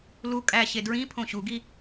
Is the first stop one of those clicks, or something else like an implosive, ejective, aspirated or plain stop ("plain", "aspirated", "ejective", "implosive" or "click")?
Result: ejective